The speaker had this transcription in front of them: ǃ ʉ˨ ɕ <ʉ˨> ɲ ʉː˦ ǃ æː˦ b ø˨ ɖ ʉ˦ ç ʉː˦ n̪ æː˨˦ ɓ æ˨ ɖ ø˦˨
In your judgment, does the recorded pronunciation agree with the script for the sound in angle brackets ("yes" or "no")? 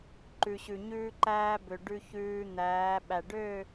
yes